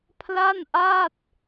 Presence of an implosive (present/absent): absent